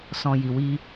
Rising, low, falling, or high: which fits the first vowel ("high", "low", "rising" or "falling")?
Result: low